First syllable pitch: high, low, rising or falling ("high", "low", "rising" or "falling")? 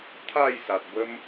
falling